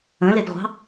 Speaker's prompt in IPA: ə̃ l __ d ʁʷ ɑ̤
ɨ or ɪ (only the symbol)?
ɪ